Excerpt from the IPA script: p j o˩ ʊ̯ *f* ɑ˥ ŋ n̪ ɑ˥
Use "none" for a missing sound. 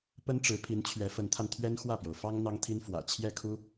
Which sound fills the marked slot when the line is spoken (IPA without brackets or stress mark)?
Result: f